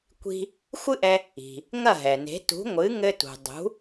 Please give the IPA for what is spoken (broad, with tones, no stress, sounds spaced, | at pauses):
kʷ i̤˧ | xʷ ɨ˥ ʔ ɛ˧ | i̤˩ | ŋ ɐ˥˩ ɦ ɛ˩ n e̤˩˥ t ṳ˩˥ ŋʷ ɨ˩˥ ŋ ɘ˧ t ṳ˩ dˤ ṳ˩˥